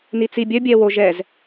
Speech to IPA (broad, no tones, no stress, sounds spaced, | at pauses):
n i t͡s i bʲ œ bʲ ɛ w o ʒ ɛ z